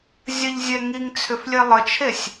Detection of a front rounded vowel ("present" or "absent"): present